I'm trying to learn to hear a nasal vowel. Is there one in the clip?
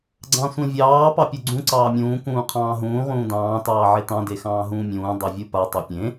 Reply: yes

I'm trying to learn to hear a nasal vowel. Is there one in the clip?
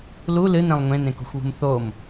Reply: yes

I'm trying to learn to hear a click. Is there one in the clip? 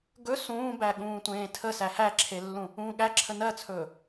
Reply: yes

